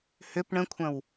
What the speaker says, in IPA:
h ʏ p ɳ ə̃ kʷʰ ɐ̃ w

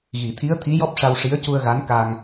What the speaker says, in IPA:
ɣ i˨˩˨ t̪ʰ i˧˥ ə̯ t̪ʰ i˧˥ j ɔ˦˥ p̚ ʂ a˧ w ʂ i˧˥ ə̯ c u˧ ə̯ ɣ a˧˥ n k a˧ ŋ

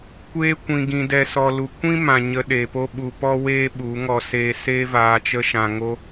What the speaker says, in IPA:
kʷ eː˧ kʷ ĩ˨ ɡ ĩ˨ d ɛ˨ s ɔ˨ l u˨ kʷ ĩ˦ m ã˨ ɲ ə˧ ɗ eː˨ p o˦ ɓ u˧ p ɔ˦ w eː˦ ɓ u˨˦ ŋ ɔ˧ s eː˧ s eː˦ v aː˧ t͡ʃ ə˦ ʃ ã˧ ŋ o˦

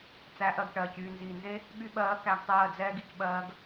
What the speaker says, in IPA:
t͡s æ˨˦ ʔ ɜ˨ ɡ ʈ ɜː˨ c yː˨ n z iː˨ n z e˦ | ɓ y˧ ɓ ɜː˨˦ k æ˧ ɡ tˤ ɜː˦˨ d͡z ɛː˦ ɡ i˨ c ɓ ɜː˧ ɡ

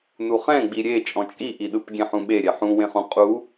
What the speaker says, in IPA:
n u χ ɛ̃ ɡ͡b i ɾʲ e t͡ʃʼ ɔ̃ t͡ʃʼ i ʔ i ɗ ɯ p ɡʲ ɛ̃ ħ ũ ɓ e ɾʲ ɛ ħ ũ w ẽ χ ũ qʼ u

